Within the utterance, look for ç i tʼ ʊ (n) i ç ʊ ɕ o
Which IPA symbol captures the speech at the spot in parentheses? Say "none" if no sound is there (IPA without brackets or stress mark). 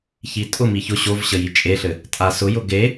m